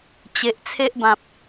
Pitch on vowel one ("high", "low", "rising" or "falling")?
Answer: low